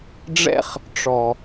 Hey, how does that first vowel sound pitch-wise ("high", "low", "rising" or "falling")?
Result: high